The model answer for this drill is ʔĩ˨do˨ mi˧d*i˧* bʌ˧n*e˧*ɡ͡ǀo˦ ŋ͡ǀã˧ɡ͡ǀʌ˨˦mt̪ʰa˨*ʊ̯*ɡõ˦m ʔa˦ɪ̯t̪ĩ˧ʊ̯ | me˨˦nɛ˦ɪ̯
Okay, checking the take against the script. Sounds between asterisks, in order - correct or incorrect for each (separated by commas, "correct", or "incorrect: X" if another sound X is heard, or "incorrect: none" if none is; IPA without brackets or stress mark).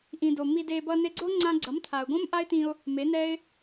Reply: incorrect: e˧, correct, correct